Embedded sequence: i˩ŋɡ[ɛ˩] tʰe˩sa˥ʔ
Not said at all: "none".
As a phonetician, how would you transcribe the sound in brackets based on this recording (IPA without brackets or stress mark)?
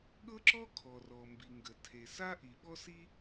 ə˩